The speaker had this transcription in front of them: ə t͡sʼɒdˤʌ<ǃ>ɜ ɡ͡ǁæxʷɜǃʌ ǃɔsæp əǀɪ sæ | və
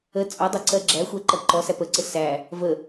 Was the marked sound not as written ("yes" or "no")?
yes